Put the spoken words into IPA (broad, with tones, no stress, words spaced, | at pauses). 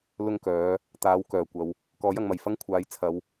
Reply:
lʊ˥ŋkœː˨˥ | t̪aː˨˥wkœː˨˩ kʷɐ˨˧w | kɔː˨˥jɐ˨˧ŋmɐ˨˩j fɐ˥ŋkʷʰaː˨˧j t͡sʰɐ˨˧w